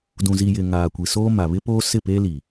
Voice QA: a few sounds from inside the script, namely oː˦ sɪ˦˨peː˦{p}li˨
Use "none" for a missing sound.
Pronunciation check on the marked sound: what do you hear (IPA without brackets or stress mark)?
none